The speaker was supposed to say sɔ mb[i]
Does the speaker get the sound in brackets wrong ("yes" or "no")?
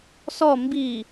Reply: no